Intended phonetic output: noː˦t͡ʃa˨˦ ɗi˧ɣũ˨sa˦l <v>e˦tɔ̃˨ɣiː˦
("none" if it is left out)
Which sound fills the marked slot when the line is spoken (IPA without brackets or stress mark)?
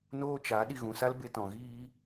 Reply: b